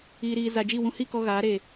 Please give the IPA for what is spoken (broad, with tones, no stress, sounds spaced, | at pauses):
iː˨ ɾ iː˨ z a˨ d͡ʒ i˦˨ w ũ˧ h i˦˨ k ɔ˧ ɣ aː˨˦ ɾ e˨